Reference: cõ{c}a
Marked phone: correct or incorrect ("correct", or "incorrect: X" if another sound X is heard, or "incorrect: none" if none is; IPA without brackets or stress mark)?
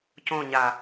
incorrect: ɲ